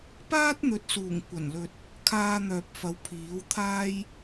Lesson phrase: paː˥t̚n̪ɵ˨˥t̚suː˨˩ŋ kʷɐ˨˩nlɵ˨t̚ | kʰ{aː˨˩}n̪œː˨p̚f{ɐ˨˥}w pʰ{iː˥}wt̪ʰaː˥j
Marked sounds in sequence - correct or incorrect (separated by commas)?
incorrect, correct, incorrect